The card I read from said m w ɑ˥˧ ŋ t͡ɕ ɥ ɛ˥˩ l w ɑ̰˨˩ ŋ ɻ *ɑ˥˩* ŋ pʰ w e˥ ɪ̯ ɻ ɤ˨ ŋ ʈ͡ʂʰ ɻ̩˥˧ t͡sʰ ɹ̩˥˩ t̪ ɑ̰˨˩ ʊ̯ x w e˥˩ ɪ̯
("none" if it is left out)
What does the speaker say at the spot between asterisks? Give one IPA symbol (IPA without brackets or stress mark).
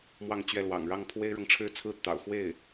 ɑ˥˩